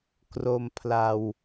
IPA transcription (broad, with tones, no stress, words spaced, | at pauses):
kro˧mpʰla˧w